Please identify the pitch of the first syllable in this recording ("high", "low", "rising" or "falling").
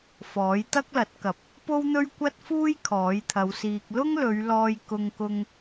rising